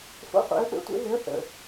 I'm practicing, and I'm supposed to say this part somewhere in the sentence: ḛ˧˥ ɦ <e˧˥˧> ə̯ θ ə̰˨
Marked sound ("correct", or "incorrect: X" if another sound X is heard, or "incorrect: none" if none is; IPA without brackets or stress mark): incorrect: e˧˥